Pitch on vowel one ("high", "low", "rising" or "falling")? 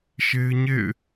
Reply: high